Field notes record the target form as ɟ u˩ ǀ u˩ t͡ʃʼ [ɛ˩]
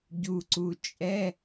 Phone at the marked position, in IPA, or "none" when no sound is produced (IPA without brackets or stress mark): ɛ˧˥˧